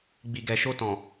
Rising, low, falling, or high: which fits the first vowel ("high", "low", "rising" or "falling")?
low